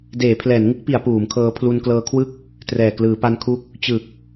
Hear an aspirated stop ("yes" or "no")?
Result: yes